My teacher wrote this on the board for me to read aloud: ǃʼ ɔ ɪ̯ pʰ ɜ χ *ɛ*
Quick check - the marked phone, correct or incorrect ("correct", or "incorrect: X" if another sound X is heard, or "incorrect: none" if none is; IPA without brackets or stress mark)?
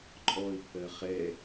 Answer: correct